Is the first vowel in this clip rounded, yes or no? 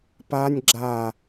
no